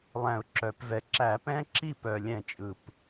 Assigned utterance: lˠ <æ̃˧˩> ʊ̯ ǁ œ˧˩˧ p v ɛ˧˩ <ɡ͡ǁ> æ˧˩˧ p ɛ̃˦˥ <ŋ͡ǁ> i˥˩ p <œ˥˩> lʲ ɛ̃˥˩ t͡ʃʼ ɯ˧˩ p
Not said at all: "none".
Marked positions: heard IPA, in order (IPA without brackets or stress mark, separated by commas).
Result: æ̃˧˩, ǁ, ǁ, œ˧˩